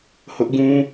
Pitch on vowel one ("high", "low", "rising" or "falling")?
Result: high